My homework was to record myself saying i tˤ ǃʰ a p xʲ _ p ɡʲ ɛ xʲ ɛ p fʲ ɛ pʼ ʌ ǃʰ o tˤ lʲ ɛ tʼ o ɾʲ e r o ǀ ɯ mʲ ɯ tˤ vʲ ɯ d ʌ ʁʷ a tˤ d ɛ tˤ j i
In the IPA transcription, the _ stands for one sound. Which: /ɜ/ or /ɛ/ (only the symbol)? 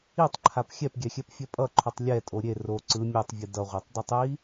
ɛ